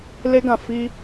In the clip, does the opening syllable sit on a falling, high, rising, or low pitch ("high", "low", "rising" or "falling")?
high